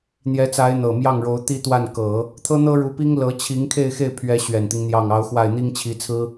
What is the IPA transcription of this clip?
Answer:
n̪ j ɛ˧˥ t͡s a˧˥ ɪ̯ n̪ ɤ˨˩ m j ɑ˥˩ ŋ ɻ o˧˥ ʊ̯ t̪ i˥ t̪ w a˥˩ n k ɤ˨˩˦ | t̪ʰ ɤ˥ n̪ ɤ˥ ɻ u˧˥ p i˥ ŋ l ɤ˧˥ t͡ɕʰ i˧˥ ŋ kʰ e˥˧ ɪ̯ x e˥˩ ɪ̯ pʰ ɥ ɛ˧˥ ɕ ɥ ɛ˨˩ n t̪ i˦ ŋ n̪ j ɑ˥˩ ŋ ɑ˧˥ ʊ̯ x w a˥˩ ɪ̯ n̪ i˥ ŋ t͡ɕʰ i˧˥ t͡sʰ ɹ̩˥

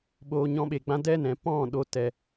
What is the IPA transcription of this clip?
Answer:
ɓ oː˧ ɲ ɔ̃˧ ɓ e˨ ɡ͡b ã˧ d ɛ˦ n ɛ̃˨ p ɔ̃˦˨ ɗ o˧ t ɛ˨

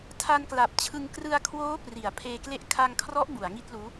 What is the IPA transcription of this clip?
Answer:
tʰ a˧ n k l a˨˩ p̚ t͡ɕʰ ɯ˧ ŋ k r ɯ˧ a̯ kʰ w oː˦˥ p r i˩˦ a̯ pʰ eː˧ k l e˥˩ ʔ kʰ a˧ ŋ kʰ r ɔ˦˥ ʔ b u˩˦ a̯ ŋ i˥˩ t̚ l uː˦˥

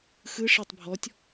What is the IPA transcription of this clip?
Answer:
x ɯ ʂ æ tˤ bʱ ɔ tʲ

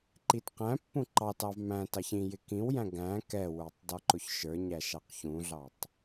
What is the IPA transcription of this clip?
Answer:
ǃ i t q æ̃ pː ũ ǃ ɑ t ɑ v m æ̃ t ɑ ç ĩ j ɪ k ĩ w j æ̃ ɡ æ̃ k ɛ w ə˞ tˤ d ɔ ǃ ʊ ç ʃ ə˞ ɲ æ ʃ ɑ q ç ũ ɮ ɑ tˤ

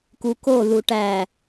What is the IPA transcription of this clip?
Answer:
k u k o ð u ʈ æ

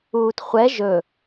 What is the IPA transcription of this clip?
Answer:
uː t χʷ ɛ ʒ ɵ

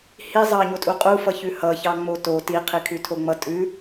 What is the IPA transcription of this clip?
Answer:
h i zˤ ɑ ɲ o tʼ u qʼ u f ʌ ç ʉ h ʌ ç ɑ ŋ͡m o t o t i qʰ i kʰ ʉ tʰ o ŋ͡m ʌ tʼ ʉ

